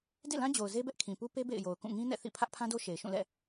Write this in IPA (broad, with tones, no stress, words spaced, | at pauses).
dḛ˦˨lã˦ d͡ʑo˨ʊ̯ze˦bɛ˦ʔ kʰĩ˨pu˦ pe˦ bḛ˦˨ɪ̯jo˨ʊ̯kũ˦˨ ŋĩ˦nɛ̰˦˨θḭ˦˨ pʰä˦ʔpʰã˦do˦ ʃe˨ɪ̯ʃũ˦˨lɛ̰˦˨